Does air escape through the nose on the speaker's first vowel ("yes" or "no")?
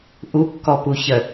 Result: no